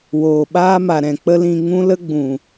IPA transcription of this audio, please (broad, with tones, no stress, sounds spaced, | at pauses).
w oː˨ ɓ aː˦ m a˨ ɾ ɛ̃˨ k͡p ə˦ l ĩ˧ ŋ ũ˦ l ə˦ ɡ͡b ũ˨